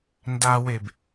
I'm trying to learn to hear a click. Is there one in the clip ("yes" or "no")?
no